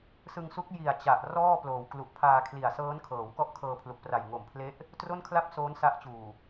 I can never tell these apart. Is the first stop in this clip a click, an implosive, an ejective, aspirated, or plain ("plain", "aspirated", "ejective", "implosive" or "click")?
plain